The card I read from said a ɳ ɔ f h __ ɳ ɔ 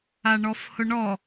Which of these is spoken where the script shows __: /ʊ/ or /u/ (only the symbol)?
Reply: ʊ